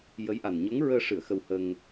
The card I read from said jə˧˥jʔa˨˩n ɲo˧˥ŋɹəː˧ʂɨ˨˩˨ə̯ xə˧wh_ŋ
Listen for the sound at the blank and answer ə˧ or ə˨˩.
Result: ə˧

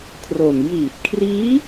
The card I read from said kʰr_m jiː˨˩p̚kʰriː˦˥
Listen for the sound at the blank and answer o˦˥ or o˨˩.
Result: o˨˩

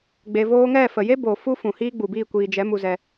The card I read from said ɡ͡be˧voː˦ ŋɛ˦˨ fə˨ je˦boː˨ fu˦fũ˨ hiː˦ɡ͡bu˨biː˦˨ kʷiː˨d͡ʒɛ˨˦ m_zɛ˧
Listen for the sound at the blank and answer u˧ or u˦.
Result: u˧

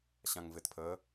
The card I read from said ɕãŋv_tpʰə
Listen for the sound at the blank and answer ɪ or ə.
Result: ɪ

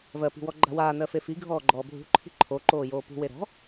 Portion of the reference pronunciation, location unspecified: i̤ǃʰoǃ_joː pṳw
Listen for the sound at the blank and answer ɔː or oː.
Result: oː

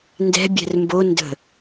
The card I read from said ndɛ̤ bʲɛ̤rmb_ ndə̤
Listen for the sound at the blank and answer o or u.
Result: o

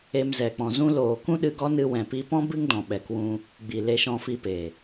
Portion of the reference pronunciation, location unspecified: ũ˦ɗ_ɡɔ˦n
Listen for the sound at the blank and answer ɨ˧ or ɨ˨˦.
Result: ɨ˧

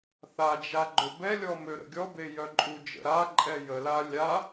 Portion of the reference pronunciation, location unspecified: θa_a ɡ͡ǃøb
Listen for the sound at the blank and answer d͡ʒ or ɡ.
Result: d͡ʒ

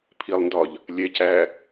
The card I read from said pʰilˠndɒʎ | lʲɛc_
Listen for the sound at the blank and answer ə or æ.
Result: æ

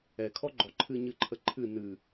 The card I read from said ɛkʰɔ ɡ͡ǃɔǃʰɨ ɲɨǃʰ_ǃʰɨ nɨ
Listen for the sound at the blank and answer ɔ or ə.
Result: ə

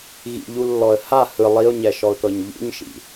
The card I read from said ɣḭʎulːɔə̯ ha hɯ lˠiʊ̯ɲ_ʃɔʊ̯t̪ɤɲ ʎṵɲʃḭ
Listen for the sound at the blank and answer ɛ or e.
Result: ɛ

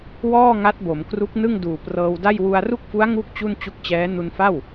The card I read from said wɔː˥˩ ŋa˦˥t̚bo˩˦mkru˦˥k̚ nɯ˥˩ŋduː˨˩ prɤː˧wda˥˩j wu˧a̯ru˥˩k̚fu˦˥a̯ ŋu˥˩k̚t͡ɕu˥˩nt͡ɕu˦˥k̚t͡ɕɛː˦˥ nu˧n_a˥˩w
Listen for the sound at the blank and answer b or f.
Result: f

